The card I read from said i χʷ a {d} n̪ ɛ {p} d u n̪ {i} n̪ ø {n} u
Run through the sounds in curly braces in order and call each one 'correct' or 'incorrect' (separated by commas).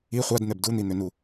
correct, incorrect, correct, correct